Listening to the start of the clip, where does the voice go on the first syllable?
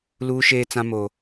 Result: high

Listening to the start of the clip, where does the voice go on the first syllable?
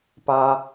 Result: low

